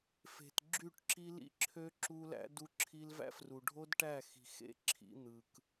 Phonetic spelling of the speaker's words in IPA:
f e̤˨ t ɡ͡ǁ y˦˨ ʈ ǁ i˦ l ḭ˦ ǁʰ ø˦ ǁ u˦ l æ̰˦ d u˦ ǁʰ i˦ l v æ̰˦ f r u˨ ɖʱ o˦ d ʈ æ˦˨ x i̤˨ x ḛ˦ ǁʰ ḭ˦ n̪ ɯ˨ k

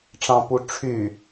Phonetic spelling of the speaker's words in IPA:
ʈ͡ʂ ɑ̃ p u ʈ͡ʂʰ y

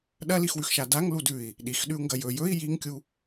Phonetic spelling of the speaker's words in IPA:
ɗ ɐ l i x w ʉ x ʃ a d a ŋ l u d ʉ i̯ | ɗ i x ɗ ʉ u̯ ŋ ɡ ɐ j ɵ j ɵ i̯ j i ŋ kʲ u

